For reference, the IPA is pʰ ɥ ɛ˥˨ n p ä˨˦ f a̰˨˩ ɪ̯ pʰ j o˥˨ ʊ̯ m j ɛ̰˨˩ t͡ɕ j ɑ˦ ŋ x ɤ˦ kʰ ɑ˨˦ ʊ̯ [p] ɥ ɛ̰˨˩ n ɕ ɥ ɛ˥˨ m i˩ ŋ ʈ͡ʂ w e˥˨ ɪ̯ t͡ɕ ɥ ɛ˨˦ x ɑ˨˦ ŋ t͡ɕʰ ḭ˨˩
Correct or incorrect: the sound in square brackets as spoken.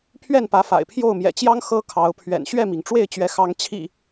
incorrect: pʰ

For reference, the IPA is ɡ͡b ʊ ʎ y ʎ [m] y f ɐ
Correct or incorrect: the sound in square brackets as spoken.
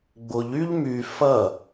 correct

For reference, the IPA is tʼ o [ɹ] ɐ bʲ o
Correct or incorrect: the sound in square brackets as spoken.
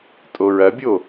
correct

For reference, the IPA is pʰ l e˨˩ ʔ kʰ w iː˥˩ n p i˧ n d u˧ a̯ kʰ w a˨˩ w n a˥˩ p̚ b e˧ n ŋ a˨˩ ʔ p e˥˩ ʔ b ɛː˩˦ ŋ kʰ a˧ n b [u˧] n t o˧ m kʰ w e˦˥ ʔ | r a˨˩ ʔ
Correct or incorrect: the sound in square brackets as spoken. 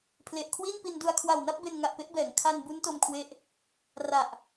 incorrect: u˦˥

